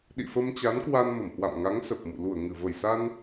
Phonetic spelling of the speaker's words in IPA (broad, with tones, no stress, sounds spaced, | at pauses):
ɗ ḭ˧˨ f ə˧ m t͡ɕ a˨˦ n k w a˧ n m ə˧˩ m h w a̰˧˨ m ŋ a˨˦ ŋ s ə˨˩ p̚ m ṵ˧˨ l u˧˩ ə̯ ŋ ɨ˧˩ v ə˧˩ j s a˧ n